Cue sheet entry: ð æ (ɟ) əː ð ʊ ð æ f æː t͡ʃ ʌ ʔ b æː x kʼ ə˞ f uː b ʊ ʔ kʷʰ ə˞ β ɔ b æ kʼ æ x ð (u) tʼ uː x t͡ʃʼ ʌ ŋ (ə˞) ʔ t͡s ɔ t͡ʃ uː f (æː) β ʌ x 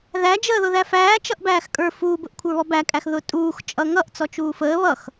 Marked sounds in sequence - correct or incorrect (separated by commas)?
incorrect, incorrect, incorrect, incorrect